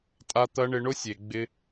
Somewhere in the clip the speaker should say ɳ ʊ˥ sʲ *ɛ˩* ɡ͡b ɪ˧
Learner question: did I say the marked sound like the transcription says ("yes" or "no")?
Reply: no